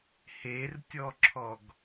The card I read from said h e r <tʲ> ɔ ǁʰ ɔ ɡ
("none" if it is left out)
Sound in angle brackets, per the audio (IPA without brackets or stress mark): tʲ